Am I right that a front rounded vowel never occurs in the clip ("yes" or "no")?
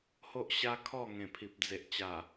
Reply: yes